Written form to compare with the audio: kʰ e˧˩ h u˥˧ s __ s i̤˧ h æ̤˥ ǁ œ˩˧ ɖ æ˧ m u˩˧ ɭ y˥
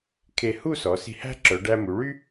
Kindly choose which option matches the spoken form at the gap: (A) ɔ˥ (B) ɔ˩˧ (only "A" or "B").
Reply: B